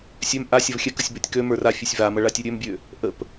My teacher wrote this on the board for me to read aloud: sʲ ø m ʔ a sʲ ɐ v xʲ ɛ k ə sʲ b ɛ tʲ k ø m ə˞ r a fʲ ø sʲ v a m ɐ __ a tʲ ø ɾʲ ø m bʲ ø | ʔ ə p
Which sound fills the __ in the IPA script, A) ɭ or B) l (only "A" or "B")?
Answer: A